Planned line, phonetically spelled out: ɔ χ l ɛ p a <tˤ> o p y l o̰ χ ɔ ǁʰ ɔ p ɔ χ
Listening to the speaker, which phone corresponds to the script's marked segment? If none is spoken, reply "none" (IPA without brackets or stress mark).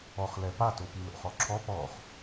t